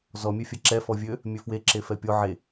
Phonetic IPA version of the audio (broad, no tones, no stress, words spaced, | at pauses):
zɔ mʲøfʲɛǁɛ fɔvʲø | mʲøfwe ǁefɛpʲo ʕe